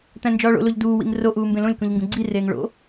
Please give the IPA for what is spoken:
t̪ æ̃ n d͡ʒ ɒː ɭ o̰ l o ʎ d uː w ḭ ŋ r o ʔ uː m b ẽ l õ lʲ k ũ ʎ ŋ ɡ ũ ɡ͡ǀ i r eː ŋ ɭ o̰

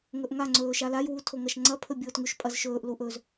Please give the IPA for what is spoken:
ŋ ɵ ʔ ŋ a ŋ͡ǀ ɵː ʃ a l a j w u tʰ o ŋ ɐ ʃ ŋ͡ǀ ɐ pʰ ɵ bʲ oː t ŋ ʉ ʃ pʼ ɐ z ʃ ɵː ʔ l u ʔ ɵ z

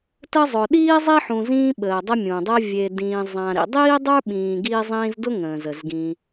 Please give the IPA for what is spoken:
t ə˦ zˤ ʊ˨ ɗ iː˥ zˤ i˥ ħ ũ˨ z ĩː˦ ɓ əː˩ dˤ ə˦ mʲ ũ˩ dˤ əː˦ vʲ e˨ d ĩː˨ zˤ ã˨ ɾ ḭ˨ dˤ iː˥ dˤ ə˞˥ ɓ ĩː˨ ɡ iː˦ zˤ ĩ˦ z d ʊ˥ ŋ ə̃ː˩ z ə˩ z ɡ ĩ˨

